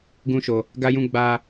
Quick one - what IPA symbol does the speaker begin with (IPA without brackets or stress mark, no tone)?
ɡ